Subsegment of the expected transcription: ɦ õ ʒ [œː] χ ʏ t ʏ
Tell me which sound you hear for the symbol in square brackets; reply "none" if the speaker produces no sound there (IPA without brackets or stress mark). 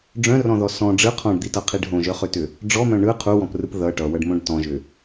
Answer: œ